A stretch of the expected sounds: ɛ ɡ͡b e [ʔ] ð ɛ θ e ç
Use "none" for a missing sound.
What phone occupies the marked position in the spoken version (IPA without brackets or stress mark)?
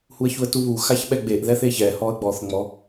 ʔ